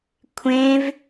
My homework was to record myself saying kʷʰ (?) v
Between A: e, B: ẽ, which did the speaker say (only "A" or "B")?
B